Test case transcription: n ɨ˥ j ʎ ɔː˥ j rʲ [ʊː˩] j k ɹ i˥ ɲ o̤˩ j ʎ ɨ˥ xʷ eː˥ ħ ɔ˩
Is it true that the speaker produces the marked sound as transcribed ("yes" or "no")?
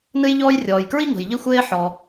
no